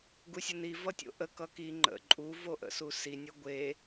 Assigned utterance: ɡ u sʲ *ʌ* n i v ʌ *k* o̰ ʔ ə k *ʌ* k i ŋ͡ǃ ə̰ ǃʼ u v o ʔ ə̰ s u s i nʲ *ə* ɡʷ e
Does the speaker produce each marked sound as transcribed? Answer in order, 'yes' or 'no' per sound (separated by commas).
no, no, yes, no